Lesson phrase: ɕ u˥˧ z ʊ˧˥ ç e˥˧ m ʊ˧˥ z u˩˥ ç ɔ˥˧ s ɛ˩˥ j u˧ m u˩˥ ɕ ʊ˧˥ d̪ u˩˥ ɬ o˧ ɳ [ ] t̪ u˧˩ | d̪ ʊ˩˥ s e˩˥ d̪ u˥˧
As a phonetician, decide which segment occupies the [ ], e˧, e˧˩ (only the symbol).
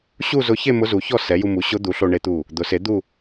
e˧